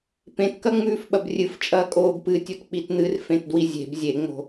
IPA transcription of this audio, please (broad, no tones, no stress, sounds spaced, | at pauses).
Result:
p ẽ t k ɐ ŋ͡m ʉː f ɓ ɐ b rʲ ɨ f t͡ʃʼ ɐː kʼ oː b p ɨ tʲ o t k͡p i t n̪ ɨ r f ẽ t d w i zʲ e̤ b zʲ e ŋ͡m o̤